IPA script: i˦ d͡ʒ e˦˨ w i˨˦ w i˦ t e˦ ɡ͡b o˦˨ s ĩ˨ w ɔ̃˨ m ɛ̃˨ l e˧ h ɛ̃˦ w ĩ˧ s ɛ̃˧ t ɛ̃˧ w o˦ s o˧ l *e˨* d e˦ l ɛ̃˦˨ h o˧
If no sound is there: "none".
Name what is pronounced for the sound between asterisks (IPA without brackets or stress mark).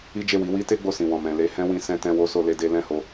e˦